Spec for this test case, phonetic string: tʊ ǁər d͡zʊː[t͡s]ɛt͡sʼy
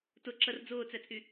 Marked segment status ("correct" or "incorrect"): correct